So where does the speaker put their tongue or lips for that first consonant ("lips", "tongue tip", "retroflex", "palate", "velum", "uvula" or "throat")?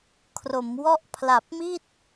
velum